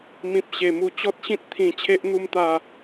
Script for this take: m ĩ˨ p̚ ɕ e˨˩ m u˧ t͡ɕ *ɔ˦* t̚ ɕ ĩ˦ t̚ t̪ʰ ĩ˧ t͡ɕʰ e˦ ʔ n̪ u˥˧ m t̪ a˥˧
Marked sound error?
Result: no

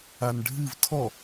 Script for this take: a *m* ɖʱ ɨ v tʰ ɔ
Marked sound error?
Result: yes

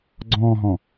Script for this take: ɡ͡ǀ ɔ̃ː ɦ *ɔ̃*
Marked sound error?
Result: no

